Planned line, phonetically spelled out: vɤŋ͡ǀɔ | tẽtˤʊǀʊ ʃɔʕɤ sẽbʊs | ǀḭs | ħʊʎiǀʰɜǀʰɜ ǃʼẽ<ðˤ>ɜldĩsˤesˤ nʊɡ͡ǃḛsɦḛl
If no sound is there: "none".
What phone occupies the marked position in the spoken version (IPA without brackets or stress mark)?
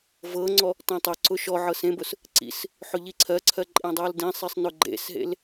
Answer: dˤ